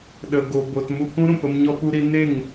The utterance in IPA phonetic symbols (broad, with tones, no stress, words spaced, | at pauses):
ɗə˧ɡo˧bo˧t mu˧kũ˦ɾũ˨pə˧m ɲɔ˧pu˧ɾi˧ ne˦˨ŋ